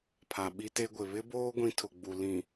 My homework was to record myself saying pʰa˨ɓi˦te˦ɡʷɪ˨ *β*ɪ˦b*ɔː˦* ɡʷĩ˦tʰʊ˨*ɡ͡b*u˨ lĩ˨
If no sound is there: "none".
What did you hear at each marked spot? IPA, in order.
β, oː˦, ɡ͡b

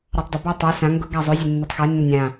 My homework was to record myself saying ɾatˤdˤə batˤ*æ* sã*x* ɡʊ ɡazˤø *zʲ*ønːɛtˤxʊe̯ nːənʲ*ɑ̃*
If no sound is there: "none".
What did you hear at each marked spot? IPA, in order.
æ, ŋ, zʲ, ã

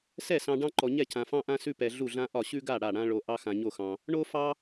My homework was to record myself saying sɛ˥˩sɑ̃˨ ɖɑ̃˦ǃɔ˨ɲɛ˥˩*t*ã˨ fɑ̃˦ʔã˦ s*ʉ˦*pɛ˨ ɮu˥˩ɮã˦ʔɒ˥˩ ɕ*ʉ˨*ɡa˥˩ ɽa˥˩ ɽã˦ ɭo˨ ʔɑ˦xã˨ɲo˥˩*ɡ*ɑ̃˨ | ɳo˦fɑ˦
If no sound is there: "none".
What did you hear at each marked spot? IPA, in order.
cʰ, ʉ˦, ʉ˦, x

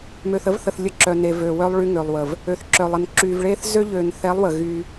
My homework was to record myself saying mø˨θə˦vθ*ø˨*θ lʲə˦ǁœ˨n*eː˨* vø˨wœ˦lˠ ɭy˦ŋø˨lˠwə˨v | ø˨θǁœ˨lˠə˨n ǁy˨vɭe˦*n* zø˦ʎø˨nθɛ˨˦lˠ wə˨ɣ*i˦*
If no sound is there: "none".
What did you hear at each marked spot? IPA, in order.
ə˨, e˨, θ, y˦

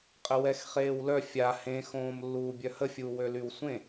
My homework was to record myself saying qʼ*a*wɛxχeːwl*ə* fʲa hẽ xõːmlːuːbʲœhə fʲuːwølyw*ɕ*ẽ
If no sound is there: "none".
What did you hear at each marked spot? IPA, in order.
ə, œ, sʷ

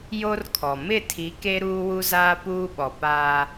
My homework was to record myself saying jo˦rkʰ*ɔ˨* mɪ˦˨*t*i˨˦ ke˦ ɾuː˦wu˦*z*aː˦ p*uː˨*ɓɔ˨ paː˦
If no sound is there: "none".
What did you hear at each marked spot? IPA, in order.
ɔ˨, tʰ, z, uː˦

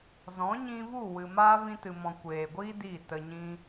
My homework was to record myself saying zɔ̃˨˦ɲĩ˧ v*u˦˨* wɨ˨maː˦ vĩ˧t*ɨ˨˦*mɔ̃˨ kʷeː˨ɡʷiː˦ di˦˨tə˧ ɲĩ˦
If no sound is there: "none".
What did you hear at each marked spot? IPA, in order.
u˦˨, ɨ˨

